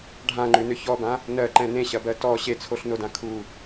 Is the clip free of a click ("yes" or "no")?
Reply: no